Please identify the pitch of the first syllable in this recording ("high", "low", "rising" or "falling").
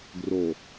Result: low